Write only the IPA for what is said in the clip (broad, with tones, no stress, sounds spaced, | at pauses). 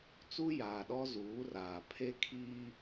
t͡s u˦ j aː˨ ɗ ɔ˦ z uː˨˦ r aː˨ pʰ e˦ kʰ iː˦